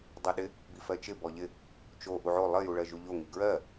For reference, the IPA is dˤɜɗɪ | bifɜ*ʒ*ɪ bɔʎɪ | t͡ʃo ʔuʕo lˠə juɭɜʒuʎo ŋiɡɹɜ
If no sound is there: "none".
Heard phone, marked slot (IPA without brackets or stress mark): t͡ʃ